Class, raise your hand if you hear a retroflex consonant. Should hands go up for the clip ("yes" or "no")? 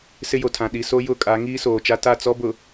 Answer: no